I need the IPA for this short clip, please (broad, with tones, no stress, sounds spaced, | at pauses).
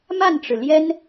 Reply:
m a˥˩ n ʈ͡ʂ ɻ̩˩ l j ɛ˥ n